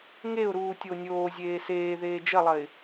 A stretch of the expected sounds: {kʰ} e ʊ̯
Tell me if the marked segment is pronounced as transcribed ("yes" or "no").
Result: no